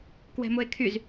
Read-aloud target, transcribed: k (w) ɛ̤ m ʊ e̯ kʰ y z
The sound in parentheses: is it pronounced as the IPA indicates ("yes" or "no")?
yes